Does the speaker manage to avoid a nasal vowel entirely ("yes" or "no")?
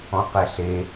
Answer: no